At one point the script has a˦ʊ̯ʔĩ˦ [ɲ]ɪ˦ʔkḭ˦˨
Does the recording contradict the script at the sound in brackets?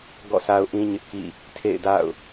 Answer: no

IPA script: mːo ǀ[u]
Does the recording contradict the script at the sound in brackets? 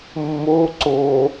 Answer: yes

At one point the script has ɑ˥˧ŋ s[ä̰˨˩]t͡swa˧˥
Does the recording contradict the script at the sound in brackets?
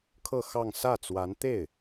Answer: yes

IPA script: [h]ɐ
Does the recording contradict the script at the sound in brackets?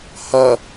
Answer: no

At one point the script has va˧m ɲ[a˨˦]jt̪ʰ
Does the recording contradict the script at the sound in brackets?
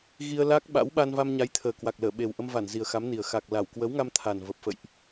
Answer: no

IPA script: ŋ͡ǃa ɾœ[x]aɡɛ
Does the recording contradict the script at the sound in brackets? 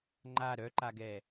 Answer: yes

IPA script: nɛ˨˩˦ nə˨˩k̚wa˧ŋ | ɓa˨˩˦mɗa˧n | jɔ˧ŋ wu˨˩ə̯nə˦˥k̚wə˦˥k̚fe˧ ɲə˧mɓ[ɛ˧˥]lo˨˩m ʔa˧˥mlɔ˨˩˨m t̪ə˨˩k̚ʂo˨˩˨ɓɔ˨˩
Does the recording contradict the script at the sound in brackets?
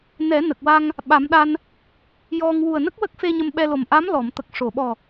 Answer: yes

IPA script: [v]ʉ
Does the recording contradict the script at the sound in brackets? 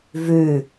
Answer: no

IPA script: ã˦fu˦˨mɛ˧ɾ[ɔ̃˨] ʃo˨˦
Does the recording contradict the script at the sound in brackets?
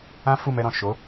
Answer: no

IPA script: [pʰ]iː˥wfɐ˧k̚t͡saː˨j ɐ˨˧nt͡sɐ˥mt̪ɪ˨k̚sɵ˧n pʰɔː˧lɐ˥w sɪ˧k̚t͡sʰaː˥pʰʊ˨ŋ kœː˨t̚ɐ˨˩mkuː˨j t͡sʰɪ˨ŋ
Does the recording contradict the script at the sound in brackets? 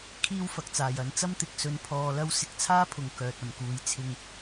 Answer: yes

